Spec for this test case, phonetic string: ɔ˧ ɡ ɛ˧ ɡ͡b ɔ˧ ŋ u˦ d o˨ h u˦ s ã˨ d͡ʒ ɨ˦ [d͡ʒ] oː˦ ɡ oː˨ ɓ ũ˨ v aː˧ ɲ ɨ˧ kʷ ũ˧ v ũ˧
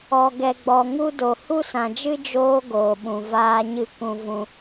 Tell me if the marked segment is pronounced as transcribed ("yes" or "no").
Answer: yes